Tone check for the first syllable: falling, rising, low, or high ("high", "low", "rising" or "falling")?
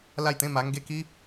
falling